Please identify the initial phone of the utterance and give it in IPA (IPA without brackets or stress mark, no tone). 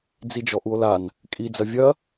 d͡z